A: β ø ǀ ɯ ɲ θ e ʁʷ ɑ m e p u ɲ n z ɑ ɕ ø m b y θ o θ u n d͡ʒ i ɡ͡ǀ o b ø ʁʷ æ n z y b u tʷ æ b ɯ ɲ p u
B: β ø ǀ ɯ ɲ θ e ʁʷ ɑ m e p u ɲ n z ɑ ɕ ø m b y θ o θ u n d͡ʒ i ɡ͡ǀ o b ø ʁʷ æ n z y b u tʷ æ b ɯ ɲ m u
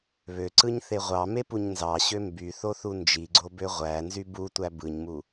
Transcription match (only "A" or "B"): B